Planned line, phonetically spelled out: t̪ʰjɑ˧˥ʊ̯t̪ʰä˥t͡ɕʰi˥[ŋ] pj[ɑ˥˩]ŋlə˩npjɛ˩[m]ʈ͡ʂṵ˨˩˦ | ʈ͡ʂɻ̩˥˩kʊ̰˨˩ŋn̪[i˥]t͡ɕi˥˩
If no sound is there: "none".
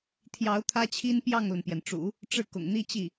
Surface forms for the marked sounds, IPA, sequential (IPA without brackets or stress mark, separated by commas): n, ɑ˥˩, n, i˥